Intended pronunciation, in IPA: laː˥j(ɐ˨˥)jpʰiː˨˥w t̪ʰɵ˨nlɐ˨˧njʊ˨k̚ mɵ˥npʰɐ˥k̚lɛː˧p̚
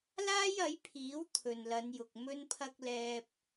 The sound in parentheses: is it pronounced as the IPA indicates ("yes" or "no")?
yes